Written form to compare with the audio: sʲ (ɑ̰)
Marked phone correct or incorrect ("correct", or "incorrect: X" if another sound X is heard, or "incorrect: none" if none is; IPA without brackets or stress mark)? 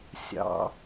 correct